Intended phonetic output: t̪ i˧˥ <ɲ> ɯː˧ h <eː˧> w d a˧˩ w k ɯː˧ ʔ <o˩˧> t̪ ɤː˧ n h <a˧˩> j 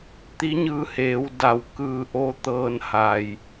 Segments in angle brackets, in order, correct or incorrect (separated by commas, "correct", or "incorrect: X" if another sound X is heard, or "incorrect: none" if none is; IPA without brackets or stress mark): correct, incorrect: eː˩˧, incorrect: o˥˨, correct